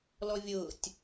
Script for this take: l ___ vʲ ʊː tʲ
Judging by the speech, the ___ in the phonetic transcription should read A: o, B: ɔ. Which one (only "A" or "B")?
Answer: B